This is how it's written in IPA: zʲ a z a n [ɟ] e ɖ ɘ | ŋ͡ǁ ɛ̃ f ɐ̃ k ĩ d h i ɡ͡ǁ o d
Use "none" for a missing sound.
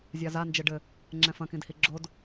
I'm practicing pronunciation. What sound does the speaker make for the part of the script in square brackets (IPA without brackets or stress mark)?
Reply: d͡ʒ